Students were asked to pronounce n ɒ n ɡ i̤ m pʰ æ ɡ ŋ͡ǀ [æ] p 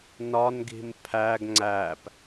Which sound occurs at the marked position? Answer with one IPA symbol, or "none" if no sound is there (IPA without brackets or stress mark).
æ